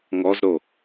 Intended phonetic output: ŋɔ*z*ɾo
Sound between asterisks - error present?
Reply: no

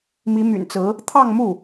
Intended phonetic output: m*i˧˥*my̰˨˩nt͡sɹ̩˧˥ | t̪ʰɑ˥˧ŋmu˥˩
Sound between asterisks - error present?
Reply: no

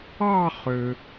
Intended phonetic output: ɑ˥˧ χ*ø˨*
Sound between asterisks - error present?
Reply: no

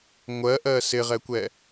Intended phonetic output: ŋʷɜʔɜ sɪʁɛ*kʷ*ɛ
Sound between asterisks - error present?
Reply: no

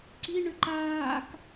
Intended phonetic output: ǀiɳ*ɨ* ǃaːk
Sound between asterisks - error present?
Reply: yes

